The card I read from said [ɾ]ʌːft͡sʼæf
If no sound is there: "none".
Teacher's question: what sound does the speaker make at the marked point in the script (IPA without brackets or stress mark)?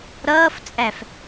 ɾ